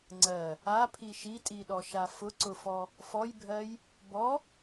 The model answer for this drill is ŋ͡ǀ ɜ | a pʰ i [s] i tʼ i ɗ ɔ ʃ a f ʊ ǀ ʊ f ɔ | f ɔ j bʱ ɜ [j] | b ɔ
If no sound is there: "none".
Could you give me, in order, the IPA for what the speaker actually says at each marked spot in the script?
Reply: ʃ, j

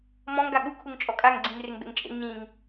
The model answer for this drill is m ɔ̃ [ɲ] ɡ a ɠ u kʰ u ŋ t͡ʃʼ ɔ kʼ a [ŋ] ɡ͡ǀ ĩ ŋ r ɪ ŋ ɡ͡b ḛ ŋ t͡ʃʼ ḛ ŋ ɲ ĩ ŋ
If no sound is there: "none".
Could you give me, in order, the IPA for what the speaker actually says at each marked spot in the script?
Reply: ŋ, ŋ

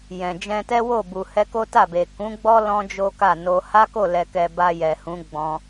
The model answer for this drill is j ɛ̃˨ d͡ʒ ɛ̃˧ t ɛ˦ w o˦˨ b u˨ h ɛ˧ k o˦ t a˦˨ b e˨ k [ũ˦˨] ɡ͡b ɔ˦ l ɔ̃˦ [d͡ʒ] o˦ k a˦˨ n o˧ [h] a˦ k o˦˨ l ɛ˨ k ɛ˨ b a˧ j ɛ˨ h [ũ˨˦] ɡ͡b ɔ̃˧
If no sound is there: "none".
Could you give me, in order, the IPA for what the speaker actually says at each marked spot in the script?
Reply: ũ˨˦, d͡ʒ, h, ũ˨˦

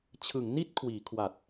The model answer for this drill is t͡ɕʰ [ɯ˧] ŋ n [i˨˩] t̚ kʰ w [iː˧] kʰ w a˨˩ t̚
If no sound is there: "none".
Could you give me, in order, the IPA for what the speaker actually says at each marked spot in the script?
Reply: ɯ˩˦, i˥˩, iː˩˦

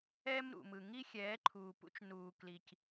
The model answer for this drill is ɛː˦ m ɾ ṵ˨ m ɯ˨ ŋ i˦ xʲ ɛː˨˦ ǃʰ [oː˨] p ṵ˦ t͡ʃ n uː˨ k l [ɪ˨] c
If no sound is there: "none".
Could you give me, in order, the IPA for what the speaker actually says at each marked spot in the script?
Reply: uː˨, i˨

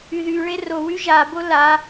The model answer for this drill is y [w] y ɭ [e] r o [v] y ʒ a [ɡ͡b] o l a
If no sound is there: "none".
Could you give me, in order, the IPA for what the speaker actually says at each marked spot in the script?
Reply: ð, e, w, b

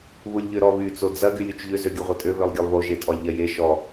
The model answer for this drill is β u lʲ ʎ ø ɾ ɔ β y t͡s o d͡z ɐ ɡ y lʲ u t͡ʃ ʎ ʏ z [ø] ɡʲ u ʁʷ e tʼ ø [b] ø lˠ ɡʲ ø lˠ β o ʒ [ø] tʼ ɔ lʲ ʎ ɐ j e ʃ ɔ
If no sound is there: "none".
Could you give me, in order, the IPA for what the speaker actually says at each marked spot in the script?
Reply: ø, β, e

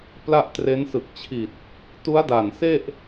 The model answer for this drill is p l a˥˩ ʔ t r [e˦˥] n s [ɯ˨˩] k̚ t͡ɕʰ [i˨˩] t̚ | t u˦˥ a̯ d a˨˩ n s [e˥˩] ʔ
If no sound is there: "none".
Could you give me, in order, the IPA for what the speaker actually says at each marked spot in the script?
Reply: e˦˥, ɯ˨˩, i˨˩, e˥˩

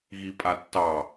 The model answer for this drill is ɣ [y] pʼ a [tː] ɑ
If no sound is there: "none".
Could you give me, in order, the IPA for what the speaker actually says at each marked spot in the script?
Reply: i, tː

